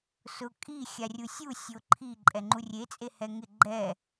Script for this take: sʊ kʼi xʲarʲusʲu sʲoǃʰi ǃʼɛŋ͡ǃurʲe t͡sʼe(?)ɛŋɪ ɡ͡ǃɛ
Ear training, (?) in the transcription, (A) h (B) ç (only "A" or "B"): A